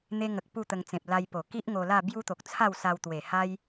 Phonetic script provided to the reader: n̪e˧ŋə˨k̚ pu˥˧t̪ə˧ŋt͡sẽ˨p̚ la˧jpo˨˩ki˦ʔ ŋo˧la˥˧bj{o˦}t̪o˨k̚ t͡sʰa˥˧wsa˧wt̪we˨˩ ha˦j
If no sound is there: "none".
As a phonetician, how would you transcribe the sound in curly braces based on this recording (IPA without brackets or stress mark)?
u˦